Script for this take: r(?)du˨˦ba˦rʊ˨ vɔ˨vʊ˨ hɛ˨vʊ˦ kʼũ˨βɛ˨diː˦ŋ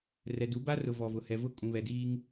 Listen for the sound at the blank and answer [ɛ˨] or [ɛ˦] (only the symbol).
ɛ˨